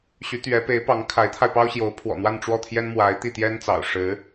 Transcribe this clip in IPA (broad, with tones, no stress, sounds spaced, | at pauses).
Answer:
ɕ y˧˥ t̪ ɥ ɛ˧˥ p e˧˥ ɪ̯ p ɑ˧˥ ŋ kʰ a˧˥ ɪ̯ t̪ʰ a˧ ɪ̯ p ɑ˥ ʊ̯ ɕ j o˧˥ ʊ̯ pʰ w ɔ̰˨˩ n̪ w a˥˧ n ʈ͡ʂ w ɔ˥˩ t̪ʰ j ɛ˥ n m w a˧˥ ɪ̯ t̪ i˥˩ t̪ j ɛ˥ n t͡s ɑ̰˨˩ ʊ̯ ʂ ɻ̩˧˥